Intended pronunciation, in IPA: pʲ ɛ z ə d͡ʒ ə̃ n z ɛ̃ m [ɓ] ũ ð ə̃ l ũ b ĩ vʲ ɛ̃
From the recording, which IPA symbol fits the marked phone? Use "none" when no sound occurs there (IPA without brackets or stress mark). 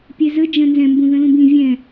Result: b